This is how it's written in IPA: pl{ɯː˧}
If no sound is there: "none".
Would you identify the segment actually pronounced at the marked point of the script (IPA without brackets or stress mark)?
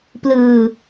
ɯː˧